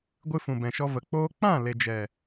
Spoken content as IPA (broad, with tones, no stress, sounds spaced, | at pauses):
ɡʷ ɨ˧ f ũ˨ b ɛ̃˨ ʃ ɔ˧ v ə˨ k͡p oː˦ k͡p ã˦˨ l e˨ d͡ʒ ɛ˨